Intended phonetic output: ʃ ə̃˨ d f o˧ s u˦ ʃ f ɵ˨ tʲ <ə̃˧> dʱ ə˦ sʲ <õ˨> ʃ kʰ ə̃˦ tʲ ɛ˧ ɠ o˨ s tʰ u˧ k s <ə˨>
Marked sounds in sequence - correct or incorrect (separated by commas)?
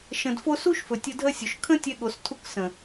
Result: incorrect, incorrect, incorrect